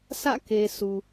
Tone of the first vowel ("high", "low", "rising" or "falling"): falling